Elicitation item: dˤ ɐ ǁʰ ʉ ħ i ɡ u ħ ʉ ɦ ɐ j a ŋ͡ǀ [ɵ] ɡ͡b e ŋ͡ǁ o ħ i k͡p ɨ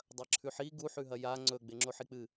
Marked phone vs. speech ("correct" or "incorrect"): correct